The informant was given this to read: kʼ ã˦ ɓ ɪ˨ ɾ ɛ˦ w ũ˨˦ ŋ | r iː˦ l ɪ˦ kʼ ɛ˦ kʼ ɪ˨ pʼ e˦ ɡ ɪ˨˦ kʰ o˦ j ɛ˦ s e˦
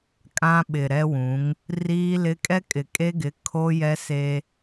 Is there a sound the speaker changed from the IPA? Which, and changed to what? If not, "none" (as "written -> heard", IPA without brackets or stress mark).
pʼ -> kʼ